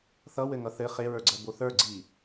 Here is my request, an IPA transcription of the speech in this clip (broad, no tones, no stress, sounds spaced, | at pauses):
θ ʌ w ɘ ŋ ʌ θ ɘ χ e ɹ ə˞ ɡ͡ǀ ɜ b o θ ə˞ ɡ͡ǀ i